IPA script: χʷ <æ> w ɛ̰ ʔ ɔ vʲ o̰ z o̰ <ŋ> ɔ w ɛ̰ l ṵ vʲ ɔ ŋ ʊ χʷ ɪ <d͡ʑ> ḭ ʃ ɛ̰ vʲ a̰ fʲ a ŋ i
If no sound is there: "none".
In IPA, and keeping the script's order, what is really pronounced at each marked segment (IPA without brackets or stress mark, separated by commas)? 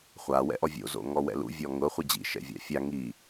a, ŋ, d͡ʑ